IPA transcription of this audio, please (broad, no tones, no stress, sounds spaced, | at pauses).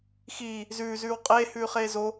x iː | z ʉː z ʉː w qʼ eː h ʉː χ eː z o